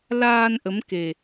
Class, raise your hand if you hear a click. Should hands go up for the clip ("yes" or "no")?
no